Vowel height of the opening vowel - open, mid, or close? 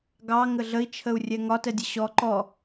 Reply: open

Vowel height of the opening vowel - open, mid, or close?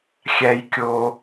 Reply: open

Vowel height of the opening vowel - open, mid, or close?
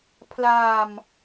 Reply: open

